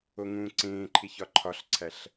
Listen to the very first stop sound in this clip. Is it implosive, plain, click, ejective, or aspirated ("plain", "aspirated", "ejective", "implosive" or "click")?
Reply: click